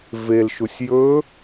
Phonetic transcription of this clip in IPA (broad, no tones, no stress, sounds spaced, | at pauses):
v e l ʃ u sʲ j ɵ